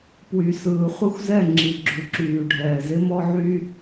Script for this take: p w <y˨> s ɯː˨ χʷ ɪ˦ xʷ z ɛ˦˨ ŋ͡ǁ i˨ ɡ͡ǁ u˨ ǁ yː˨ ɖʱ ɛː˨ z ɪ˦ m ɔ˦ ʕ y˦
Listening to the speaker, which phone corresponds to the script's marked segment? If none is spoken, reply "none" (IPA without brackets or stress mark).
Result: y˨